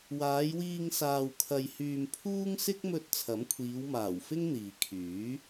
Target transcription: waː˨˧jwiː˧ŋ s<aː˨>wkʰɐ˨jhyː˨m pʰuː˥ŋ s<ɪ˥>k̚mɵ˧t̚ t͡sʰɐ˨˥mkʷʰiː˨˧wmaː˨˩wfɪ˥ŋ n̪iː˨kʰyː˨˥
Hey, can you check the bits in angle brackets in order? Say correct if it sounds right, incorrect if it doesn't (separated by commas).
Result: correct, correct